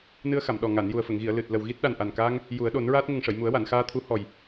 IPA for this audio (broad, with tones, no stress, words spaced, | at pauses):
nɨ˧ə̯xa˨˩˨m ɗɔ˨˩ ŋa˨˩˨n ju˨˩ə̯fə˨˩˨ŋɣi˨˩˨ə̯ lɨ˨˩t̚ lə˨˩wɣi˦˥t̚ɗa˨˩n ʔa˨˩nkaː˧ŋ | ju˨˩˦ə̯ɗo˨˩˦nɹaː˦˥t̚ ŋə˨˩ŋʂə˨˩˨j mu˨˩˦ə̯wa˨˩˨nxaː˧t̪ʰu˧˥ hɔ˨˩j